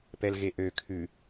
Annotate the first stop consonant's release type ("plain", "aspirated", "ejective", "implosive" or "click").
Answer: plain